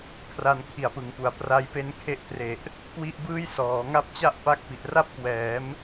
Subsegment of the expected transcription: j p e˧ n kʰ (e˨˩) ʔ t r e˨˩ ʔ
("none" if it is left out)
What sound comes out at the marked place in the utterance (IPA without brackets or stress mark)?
e˦˥